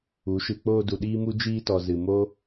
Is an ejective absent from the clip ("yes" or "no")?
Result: yes